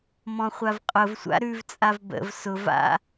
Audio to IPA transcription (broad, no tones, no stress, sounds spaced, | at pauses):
m ɔ̃ χʷ a v qʼ ʊ v sʷ a̰ ɾ ʉ v t͡sʼ a v b ə̰ v s ʊ v a̰